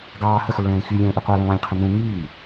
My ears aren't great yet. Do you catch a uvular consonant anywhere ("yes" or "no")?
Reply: yes